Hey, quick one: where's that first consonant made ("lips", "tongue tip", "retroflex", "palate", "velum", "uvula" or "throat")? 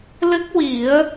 tongue tip